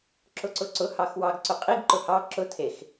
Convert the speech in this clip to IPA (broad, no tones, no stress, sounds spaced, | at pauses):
ǁ ʊ ǀ ʊ ǀ ʊ h ɑ x w ɑ ɡ ǀ ʊ qʼ i ɡ ǃ ʊ h ɑ ǁ ʊ tʰ e x